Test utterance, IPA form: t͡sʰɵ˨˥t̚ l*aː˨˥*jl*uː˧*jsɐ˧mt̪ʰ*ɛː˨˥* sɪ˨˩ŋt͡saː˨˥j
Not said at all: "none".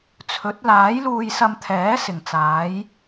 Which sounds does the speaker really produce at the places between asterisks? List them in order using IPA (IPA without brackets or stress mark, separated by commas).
aː˨˥, uː˧, ɛː˨˥